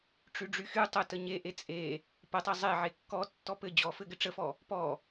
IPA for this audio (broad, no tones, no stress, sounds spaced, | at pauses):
ʈ͡ʂ y ɖ͡ʐ y x y tˤ ə t ə ɲ e ʔ e t͡sʼ e | p ə tˤ i zˤ e ʕ e kː ɔ tː ɔ p ɘ d͡ʑ ɔ f ɘ ɡ ɘ ʈ͡ʂ ə f ɔ | p ɔ